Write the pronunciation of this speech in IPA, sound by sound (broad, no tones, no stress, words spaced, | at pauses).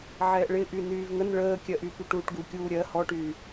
ʕɛːʔɭɪ ʔynyːvŋən ɭəːkʲɜʔy pyʈuːʈɡukʲuː ɾʲɜ hɔʈyː